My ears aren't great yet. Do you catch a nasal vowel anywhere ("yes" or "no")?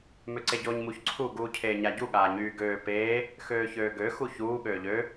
no